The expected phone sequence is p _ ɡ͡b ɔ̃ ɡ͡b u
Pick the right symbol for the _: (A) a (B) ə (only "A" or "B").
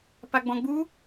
A